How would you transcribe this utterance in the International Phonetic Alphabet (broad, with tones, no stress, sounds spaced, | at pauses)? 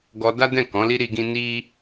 ɡ ɔ˧ d a˦ d ɛ̃˦˨ k ɔ̃˨˦ l i˦ ɾ i˧ ɡ ĩ˦ n i˦